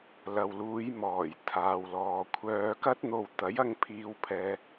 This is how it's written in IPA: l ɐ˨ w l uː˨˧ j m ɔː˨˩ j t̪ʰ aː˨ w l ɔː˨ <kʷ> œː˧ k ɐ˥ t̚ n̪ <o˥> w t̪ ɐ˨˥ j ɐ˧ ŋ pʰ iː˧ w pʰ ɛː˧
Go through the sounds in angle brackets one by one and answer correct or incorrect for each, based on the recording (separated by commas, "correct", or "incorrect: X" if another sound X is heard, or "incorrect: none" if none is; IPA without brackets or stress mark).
incorrect: kʷʰ, incorrect: o˧